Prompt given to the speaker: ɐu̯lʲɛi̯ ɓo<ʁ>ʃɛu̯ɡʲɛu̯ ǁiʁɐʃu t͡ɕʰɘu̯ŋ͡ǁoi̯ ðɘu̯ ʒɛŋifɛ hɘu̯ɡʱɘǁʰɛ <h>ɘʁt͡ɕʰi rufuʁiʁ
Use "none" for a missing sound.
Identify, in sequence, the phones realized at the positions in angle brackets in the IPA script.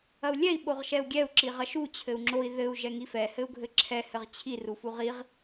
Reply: ʁ, h

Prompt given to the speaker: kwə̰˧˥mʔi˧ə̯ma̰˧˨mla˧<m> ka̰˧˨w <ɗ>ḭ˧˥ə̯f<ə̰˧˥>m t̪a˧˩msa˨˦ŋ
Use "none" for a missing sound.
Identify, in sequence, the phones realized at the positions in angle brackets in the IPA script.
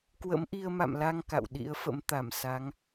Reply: ŋ, ɗ, ə̰˧˥

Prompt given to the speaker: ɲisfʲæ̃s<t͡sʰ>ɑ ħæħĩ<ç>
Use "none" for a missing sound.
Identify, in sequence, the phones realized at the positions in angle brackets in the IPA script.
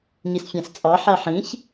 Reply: t͡sʼ, ç

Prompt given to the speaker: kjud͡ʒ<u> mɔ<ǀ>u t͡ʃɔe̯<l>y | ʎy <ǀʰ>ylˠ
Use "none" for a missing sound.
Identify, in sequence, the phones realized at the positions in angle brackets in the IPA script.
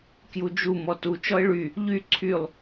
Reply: u, t, ɭ, ǀʰ

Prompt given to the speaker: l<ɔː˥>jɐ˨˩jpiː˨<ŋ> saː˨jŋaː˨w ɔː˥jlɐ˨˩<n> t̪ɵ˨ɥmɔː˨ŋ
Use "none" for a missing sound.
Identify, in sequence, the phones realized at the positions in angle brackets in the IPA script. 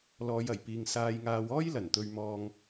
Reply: ɔː˨˧, ŋ, n

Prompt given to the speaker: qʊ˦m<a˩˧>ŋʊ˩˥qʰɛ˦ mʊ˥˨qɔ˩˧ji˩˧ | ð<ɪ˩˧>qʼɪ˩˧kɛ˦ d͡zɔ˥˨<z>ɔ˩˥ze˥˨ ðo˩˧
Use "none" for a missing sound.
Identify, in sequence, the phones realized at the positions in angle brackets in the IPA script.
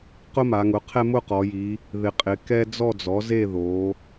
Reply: a˩˧, ɪ˩˧, d͡z

